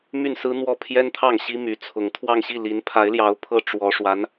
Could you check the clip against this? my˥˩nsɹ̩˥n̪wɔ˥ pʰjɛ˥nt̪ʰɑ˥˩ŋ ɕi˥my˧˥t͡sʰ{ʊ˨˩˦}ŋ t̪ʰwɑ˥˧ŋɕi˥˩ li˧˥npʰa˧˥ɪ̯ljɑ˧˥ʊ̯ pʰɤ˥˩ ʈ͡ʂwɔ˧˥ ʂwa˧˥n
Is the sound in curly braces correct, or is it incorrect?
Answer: incorrect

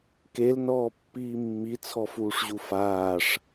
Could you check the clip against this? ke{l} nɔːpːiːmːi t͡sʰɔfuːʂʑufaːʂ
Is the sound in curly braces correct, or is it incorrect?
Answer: correct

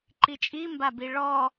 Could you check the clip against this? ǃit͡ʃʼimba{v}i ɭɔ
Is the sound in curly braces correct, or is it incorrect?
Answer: incorrect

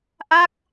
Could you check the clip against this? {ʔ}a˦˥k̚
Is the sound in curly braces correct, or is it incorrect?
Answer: correct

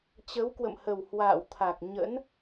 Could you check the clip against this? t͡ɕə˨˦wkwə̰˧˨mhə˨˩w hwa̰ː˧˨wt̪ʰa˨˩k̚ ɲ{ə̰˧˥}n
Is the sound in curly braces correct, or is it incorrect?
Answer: correct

